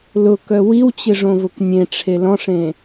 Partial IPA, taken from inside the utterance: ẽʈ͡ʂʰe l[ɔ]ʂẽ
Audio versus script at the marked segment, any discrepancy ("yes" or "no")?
yes